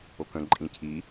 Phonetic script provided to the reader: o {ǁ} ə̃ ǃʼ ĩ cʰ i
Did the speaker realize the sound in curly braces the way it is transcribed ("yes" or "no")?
no